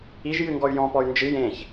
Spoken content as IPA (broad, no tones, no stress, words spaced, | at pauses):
iʒ jɨŋɡɔy̯jɔ̃pɔy̯ nd͡ʒɨ jẽç